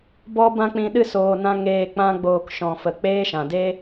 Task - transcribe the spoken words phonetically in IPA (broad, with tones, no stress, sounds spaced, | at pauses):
b ɔ˦ b ã˦ k͡p ĩ˧ ɗ ɨ˦ s oː˨ n ã˦ ŋ eː˧ k͡p ã˦ ɡ͡b oː˧ k ʃ ɔ̃˨ f ə˨ k͡p eː˦ ʃ ã˨ d e˦